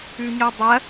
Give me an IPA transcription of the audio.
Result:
ʉɲodˤɐ

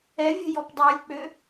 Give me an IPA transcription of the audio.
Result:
ɛvʲə̤ jɔpdˤylʲk͡pø

